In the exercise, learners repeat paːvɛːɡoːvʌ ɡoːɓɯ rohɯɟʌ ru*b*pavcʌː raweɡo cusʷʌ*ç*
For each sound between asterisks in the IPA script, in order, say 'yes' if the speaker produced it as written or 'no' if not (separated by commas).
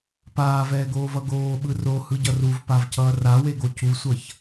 no, yes